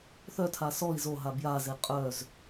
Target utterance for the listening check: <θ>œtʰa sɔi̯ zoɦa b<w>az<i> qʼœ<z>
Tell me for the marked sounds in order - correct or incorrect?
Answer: correct, incorrect: j, incorrect: e, correct

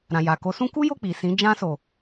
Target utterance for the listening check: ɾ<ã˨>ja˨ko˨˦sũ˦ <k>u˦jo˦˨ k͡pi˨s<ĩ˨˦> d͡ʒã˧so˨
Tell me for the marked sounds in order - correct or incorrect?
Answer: correct, correct, correct

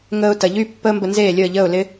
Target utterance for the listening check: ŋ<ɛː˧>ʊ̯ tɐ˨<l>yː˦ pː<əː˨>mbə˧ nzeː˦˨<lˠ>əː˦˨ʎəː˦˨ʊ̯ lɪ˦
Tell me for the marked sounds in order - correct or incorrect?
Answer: incorrect: əː˧, incorrect: ʎ, incorrect: əː˦, incorrect: lʲ

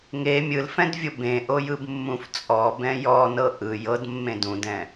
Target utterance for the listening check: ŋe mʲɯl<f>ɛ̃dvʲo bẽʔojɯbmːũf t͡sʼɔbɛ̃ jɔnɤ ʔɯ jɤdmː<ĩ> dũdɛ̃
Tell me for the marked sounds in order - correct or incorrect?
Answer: correct, incorrect: ẽ

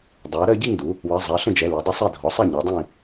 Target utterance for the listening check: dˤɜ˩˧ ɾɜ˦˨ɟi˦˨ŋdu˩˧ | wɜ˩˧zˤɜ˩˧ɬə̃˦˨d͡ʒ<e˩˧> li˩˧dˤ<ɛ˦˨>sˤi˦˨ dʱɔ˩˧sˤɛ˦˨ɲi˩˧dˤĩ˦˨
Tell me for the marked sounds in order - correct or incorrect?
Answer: incorrect: ɛ˩˧, incorrect: ə˦˨

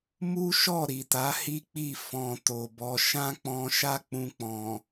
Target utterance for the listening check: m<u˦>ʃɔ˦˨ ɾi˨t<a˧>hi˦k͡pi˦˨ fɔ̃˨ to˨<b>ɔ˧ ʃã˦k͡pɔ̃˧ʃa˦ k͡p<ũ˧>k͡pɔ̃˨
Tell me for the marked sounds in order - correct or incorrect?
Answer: correct, incorrect: a˨˦, correct, correct

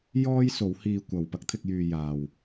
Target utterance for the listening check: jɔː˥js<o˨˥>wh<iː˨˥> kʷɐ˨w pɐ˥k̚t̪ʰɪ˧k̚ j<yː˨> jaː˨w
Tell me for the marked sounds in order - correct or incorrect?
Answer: correct, incorrect: iː˧, correct

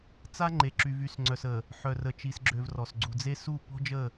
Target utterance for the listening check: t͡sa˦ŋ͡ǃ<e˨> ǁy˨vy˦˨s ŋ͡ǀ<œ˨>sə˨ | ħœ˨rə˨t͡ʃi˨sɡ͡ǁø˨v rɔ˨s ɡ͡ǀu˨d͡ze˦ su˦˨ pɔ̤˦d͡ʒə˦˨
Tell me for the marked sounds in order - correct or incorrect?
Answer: correct, correct

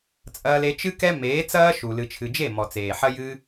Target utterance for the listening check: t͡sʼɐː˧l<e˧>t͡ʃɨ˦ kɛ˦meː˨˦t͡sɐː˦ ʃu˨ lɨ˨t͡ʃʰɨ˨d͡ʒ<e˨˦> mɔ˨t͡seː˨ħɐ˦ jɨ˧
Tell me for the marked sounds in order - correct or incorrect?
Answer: correct, incorrect: e˦˨

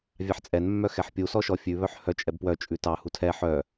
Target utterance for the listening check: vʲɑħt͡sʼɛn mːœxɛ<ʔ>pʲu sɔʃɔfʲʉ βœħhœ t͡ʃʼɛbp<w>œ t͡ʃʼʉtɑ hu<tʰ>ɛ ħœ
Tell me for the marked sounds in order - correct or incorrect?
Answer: incorrect: ħ, correct, correct

